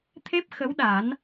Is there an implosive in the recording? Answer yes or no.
yes